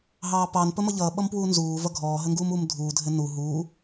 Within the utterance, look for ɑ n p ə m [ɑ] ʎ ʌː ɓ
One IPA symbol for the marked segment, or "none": ʌ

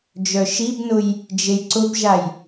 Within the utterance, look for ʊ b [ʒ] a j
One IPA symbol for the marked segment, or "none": ʒ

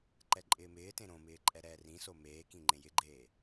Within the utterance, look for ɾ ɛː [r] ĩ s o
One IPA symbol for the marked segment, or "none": r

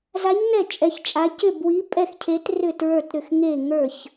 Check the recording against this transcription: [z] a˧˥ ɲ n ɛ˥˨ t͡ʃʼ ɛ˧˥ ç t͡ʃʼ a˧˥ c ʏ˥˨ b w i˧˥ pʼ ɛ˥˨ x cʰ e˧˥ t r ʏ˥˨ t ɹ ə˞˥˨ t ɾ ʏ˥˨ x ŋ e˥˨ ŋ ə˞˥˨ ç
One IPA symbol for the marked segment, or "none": z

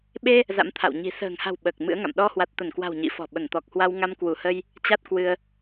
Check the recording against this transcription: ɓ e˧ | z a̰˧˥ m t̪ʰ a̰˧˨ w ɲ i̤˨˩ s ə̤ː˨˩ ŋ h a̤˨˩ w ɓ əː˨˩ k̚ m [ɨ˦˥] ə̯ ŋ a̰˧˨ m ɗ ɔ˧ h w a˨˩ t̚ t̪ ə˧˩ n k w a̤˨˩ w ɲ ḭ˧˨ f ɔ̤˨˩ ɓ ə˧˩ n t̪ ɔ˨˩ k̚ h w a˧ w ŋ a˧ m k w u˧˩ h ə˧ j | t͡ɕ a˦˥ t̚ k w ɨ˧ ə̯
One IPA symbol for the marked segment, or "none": ɨ̰˧˥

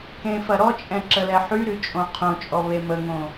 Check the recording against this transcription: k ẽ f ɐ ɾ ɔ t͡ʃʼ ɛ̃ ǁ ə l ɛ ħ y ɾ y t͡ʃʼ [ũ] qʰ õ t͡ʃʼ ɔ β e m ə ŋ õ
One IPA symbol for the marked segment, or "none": õ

